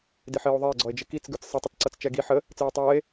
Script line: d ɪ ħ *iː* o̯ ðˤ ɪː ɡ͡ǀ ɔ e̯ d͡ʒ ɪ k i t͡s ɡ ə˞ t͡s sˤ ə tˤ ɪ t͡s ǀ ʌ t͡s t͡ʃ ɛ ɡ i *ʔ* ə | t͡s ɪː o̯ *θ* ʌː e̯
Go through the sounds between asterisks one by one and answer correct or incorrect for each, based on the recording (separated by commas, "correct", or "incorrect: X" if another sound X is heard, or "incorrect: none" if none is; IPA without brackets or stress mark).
incorrect: ɪː, incorrect: ħ, incorrect: tˤ